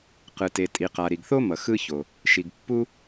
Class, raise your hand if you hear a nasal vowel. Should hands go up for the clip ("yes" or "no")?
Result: no